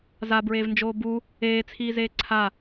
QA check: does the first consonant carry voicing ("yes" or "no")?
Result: yes